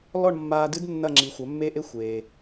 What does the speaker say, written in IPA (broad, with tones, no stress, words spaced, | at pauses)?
lɔ˥˨ɳmːaː˧dɨ˦˥d nːɐ˥˨ŋ͡ǁi˩˥ xʷɐ˩˥mːe˦˥ʔe˦˥ xʷeː˩